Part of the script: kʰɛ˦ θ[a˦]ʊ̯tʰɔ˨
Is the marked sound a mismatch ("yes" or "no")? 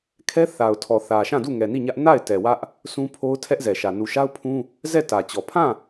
yes